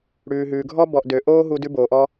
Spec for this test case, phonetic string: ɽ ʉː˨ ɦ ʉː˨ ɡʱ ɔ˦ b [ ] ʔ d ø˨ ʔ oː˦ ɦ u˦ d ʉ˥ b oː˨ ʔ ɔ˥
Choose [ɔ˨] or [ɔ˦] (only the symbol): ɔ˨